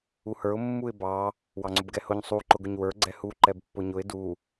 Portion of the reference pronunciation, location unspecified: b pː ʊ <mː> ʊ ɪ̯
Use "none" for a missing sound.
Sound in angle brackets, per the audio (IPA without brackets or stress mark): ɲ